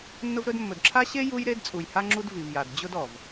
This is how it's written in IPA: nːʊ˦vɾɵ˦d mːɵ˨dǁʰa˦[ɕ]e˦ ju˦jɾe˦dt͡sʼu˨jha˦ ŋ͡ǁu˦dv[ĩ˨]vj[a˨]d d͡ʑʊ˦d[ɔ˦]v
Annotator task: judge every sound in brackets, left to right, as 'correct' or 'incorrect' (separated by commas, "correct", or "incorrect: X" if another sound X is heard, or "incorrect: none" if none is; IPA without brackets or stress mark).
correct, incorrect: i˨, correct, incorrect: ɔ˨